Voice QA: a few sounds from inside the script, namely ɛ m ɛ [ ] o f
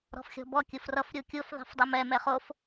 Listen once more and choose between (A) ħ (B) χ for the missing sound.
B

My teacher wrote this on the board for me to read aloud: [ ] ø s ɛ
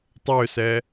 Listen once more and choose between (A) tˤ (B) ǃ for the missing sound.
A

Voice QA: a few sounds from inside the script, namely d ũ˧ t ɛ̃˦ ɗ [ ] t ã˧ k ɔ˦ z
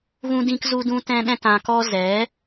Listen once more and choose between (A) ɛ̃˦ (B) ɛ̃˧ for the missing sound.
A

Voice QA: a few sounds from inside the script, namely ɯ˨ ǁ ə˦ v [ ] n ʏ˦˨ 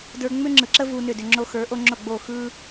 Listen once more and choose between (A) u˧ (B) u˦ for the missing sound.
A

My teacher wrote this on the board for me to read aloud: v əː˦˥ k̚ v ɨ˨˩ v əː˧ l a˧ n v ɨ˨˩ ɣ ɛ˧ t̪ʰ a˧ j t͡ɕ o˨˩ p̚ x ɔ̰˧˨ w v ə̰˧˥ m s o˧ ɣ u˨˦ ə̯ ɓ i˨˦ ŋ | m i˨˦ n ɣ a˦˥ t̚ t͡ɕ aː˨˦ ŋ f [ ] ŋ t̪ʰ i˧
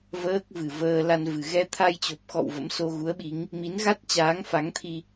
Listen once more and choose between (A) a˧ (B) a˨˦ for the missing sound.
B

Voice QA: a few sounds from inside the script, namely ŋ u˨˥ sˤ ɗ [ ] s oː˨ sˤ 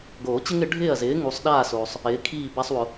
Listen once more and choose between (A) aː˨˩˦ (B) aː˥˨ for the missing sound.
B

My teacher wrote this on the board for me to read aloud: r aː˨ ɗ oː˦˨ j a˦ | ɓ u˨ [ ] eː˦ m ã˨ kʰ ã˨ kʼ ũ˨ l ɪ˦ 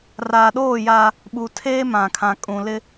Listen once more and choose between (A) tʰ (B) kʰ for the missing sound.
A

